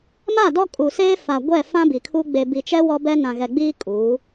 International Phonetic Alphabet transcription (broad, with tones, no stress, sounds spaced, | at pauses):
m a˦˨ d ɔ˦ kʼ u˨ s eː˦ f a˨ ɡʷ ɛ˦˨ f ã˦ b i˨ kʰ u˦ ɡ͡b e˨ b i˨ t͡ʃ ɛ˦ w ɔ˦ b ɛ˦ n ã˨ ɣ ɛ˨ ɡ͡b iː˦ kʼ uː˨˦